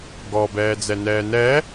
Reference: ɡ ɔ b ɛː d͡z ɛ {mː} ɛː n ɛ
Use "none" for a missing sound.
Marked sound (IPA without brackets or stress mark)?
n